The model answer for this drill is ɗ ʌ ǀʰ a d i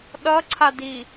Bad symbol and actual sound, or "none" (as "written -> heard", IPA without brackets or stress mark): none